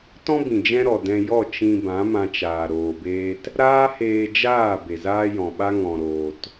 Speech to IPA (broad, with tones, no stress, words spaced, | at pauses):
tɔ̃˦bĩ˨ d͡ʒɛ̃˦ɾɔ˨ dɛ̃˧jɔ˦˨ t͡ʃĩ˧bã˨˦ mã˧t͡ʃaː˨ ɾoː˨beː˧t | ɾaː˦heː˧ d͡ʒaː˦˨ be˨zaː˦jɔ̃˨ɓa˦ ŋɔ̃˨ɾoː˨t